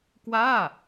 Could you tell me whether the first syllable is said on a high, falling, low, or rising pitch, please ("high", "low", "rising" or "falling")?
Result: falling